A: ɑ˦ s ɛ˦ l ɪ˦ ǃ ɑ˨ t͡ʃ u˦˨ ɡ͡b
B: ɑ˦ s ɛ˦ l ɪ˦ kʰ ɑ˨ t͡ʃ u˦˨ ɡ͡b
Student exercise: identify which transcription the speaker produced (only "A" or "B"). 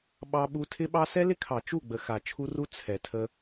B